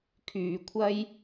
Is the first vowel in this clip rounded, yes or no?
yes